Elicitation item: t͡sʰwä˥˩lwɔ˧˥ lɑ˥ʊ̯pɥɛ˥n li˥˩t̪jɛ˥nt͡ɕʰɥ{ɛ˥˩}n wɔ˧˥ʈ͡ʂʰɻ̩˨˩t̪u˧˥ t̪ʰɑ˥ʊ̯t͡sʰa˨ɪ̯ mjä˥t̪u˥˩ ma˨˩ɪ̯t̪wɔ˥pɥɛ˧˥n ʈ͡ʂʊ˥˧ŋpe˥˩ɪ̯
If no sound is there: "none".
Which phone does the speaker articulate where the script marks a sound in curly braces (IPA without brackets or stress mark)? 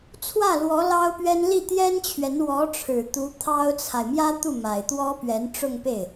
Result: ɛ˧˥